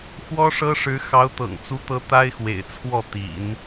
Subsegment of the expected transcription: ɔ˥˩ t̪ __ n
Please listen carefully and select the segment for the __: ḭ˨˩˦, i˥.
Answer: ḭ˨˩˦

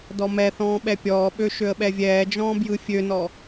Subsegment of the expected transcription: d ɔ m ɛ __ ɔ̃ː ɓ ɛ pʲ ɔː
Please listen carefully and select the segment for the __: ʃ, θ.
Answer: θ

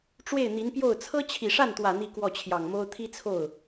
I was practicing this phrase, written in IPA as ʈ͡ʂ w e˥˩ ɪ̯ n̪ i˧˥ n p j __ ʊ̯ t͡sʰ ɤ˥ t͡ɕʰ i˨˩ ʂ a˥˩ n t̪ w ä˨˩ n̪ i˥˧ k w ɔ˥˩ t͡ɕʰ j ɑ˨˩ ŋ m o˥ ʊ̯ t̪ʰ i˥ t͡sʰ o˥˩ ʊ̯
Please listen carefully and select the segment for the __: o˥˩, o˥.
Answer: o˥˩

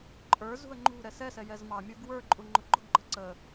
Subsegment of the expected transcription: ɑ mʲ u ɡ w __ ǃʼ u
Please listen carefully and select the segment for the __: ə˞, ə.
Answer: ə˞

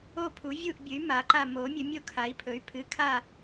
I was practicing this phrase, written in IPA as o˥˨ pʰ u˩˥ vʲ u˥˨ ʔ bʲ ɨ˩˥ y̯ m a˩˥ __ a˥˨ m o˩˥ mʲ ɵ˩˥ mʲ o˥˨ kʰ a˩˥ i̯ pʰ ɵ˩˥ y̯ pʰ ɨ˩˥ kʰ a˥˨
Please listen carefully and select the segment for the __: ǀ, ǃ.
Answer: ǃ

